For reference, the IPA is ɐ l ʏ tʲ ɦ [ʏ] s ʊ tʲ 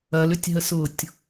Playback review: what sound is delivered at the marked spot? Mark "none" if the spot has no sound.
ə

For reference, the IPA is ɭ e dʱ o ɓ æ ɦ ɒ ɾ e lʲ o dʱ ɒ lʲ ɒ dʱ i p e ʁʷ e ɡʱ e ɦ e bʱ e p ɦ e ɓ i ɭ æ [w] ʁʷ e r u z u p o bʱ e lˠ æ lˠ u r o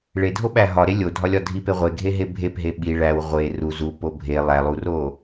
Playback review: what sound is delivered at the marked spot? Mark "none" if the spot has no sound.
w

